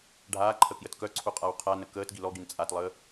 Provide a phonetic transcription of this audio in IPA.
ɖʱ aː ǃʰ ə k j ə t k œ ǀʰ u qʼ a w qʰ a n ə k əː t ɡ i l ɔ ɡ i n t͡sʼ a t lˠ əː

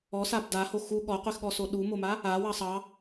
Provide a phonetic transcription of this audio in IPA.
ɔ s a b d a h o x u ɠ ɔ qʷ i x ɠ ɔ s o ɗ u m o m a | a w ɑ sˤ ɑ

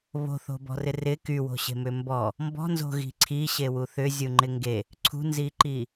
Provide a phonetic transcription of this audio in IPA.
β o̤ θ o̤ b ɔ̤ r ɪ r ɪ k y w o̤ ɕ e̤ m ʏ m b ɔ | m b ɔ̤ n z o̤ ɣ i̤ ǀʰ i ɕ e w u θ ʏ zʲ u ŋ͡ǃ ɪ ŋ ɡ e | ǀʰ ṳ n z i ǃ i

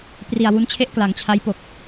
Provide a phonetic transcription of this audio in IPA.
p r i˨˩ a̯ w u˦˥ n t͡ɕʰ e˥˩ ʔ k l a˩˦ ŋ t͡ɕʰ a˦˥ j p o˨˩ k̚

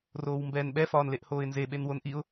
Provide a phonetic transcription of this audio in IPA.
r oː w m b ɛː n ɓ ɛ f ɒː n l e ʔ h oː ɪ̯ n z e ɓ e n w o n ʔ i ʊ̯

